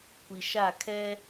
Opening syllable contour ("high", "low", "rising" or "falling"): low